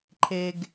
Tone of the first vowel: low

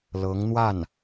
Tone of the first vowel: rising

